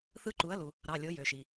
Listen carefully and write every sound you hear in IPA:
θ ɯ˦˥ ǃ u˩˥ ɐ̯ l u˩ | ɾ ɑ˩˧˩ lʲ o˩˥ j ø˩ ʃ i˩

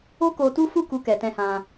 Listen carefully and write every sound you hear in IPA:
o˦ k o˧ t u˦ f u˦˨ k u˧ k ɛ˨ t ɛ̃˧ h ã˧

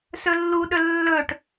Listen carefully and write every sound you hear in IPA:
s ɵ lː u ɗ ɵ lː ɵ ʈ

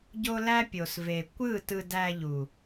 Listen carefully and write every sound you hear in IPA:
ɟ o˦ l æ˦ pʲ o˨ s v e˨ kʷ ɯ˦˨ t ɯ˧ d æ˧ ʎ u˨

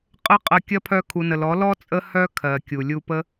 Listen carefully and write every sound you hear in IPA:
qʼ ə˦ qʼ ɐ˧ kʲ ɐ˦ pʰ œ˧ kʰ u˨ n ə˨ l ɔ˨˦ l ɔ˦ t͡sʼ ə˦ h œ˦ kʰ ɜ˨ kʲ u˨ lʲ u˧ p ə˦

